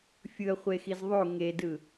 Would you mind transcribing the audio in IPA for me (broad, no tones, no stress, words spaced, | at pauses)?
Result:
fʲɯɐ̯χʷexiz ðˤo ŋedɯ